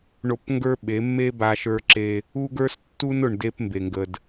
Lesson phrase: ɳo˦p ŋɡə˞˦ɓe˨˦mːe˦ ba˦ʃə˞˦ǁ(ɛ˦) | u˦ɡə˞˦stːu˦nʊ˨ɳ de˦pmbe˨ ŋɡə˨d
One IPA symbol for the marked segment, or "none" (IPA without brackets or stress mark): e˦